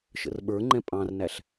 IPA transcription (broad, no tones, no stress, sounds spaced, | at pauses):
ʃ ə̰ r ɓ ə˞ ŋ͡ǃ ɛ̃ pʼ ɑ̃ r n æ ɬ